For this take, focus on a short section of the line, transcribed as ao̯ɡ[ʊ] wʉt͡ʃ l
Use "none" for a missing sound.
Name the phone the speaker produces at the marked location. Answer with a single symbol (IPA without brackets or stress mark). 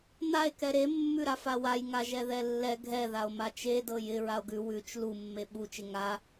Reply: ʉ